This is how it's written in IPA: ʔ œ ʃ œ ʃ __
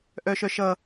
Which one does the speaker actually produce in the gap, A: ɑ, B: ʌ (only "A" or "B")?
B